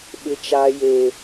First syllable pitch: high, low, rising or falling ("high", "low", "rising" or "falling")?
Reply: high